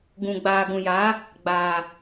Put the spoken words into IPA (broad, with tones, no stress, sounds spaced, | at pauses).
ɡ ũ˨ ɡ͡b aː˨ ɡ ũ˨ j aː˨˦ | ɡ͡b aː˨